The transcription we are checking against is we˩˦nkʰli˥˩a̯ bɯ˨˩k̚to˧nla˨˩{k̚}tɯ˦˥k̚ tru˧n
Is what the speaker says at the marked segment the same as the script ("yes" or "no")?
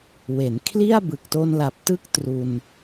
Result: no